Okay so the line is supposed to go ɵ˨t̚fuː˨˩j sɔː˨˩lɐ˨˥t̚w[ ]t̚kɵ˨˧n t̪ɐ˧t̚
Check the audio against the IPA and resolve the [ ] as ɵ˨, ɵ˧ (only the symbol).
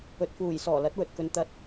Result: ɵ˨